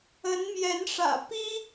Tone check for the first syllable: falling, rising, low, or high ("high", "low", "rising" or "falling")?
rising